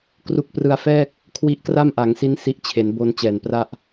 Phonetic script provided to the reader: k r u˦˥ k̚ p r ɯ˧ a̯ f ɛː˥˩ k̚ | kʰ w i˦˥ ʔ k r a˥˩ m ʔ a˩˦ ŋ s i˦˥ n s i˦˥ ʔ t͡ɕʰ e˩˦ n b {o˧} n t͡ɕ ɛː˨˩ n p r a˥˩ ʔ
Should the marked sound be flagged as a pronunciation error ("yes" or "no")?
no